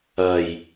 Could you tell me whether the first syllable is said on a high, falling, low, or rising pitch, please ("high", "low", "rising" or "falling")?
low